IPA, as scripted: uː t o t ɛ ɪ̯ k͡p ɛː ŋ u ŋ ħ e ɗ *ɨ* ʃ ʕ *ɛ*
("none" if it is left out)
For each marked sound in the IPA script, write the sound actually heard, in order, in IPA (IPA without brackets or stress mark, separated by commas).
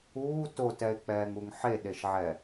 e, ɛ